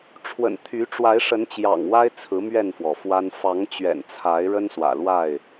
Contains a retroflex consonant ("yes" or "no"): yes